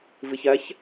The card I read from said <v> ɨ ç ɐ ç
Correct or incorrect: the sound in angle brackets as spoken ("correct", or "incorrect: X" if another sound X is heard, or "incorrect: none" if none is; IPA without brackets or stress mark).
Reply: correct